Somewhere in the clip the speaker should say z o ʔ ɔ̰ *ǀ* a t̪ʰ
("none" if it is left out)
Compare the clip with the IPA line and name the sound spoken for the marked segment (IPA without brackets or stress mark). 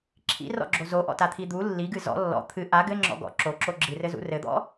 t